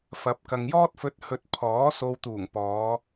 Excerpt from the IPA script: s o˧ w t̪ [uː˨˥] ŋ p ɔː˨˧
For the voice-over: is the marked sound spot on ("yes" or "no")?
no